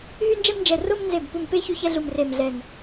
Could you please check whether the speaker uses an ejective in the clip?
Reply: no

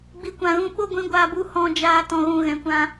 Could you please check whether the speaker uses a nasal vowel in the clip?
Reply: yes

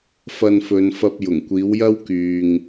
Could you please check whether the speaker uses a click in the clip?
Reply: no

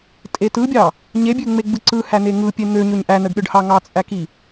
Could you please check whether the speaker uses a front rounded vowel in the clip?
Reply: yes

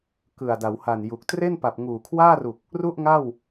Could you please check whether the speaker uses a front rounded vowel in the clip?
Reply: no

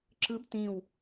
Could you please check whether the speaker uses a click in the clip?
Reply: yes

